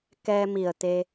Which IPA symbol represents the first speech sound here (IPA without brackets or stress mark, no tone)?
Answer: k